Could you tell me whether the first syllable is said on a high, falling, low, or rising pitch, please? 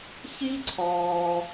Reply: high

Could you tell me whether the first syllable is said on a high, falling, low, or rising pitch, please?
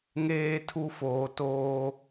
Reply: high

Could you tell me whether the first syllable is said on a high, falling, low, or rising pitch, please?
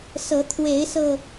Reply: rising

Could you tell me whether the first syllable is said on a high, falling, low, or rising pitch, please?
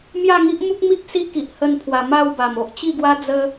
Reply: falling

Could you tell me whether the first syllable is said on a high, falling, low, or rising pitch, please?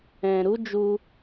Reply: low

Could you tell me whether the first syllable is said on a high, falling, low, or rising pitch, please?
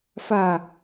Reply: low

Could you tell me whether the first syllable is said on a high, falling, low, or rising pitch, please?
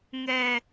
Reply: high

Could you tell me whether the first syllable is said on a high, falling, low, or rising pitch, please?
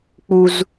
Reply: high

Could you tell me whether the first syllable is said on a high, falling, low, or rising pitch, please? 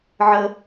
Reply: high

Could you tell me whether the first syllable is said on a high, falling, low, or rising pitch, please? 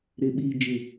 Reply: low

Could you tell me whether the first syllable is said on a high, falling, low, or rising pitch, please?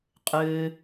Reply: low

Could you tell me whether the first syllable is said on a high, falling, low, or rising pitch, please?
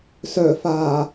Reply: low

